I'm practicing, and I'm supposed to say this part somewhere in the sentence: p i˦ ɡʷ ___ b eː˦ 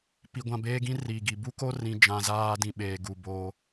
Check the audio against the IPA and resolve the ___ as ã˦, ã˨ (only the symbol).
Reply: ã˦